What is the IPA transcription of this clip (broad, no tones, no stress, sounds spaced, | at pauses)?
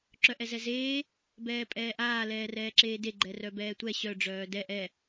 ǁ œ ʔ ɛ z ɛ z eː | b ɛː pʼ ɛː ʔ aː l ɛː r ɛː ǁ eː d e ɡ͡ǃ ɛ r œ b ɛː tʷ ɛ ɕ œ ɖ͡ʐ œː d ɛ ʔ ɛ